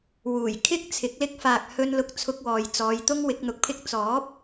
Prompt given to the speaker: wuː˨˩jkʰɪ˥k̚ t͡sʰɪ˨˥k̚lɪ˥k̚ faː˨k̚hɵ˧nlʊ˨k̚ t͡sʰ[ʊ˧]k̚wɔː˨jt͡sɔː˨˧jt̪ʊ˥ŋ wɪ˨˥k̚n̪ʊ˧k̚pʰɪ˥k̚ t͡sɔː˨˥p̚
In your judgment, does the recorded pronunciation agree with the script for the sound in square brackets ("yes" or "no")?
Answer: yes